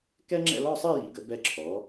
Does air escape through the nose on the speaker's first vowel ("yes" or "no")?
no